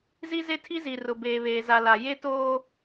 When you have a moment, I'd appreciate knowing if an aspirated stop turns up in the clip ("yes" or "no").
yes